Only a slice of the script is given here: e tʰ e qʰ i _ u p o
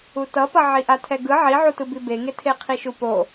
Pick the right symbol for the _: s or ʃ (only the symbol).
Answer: ʃ